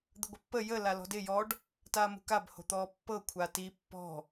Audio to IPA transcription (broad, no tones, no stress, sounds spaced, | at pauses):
d̪ ə ɡʷ ɪ pː ə j ə l a l ɔ̤ d ɪ j ɔ ɖ | t aː m ṳ k a b h o̤ t̪ ɔː pː ɤ kʷʰ a t i pː ɔ̤